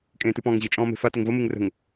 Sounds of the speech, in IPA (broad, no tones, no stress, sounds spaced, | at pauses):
kʼ ẽː t ɨ p ɔ̃ː ŋ ʑ ɨ t͡ʃʼ ɔ̃ː m e̤ f a t ə ŋ v ə m ɨ ŋ r ə̤ ŋ